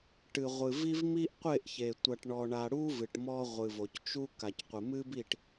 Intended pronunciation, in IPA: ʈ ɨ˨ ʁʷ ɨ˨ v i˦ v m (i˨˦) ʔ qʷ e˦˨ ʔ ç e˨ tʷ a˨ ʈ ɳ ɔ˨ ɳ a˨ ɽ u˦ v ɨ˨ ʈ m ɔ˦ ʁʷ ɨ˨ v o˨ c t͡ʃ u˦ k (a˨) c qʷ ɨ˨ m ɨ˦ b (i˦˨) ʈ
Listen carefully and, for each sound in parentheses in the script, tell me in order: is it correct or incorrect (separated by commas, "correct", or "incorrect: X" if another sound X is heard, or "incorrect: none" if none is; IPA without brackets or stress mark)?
incorrect: i˦, correct, correct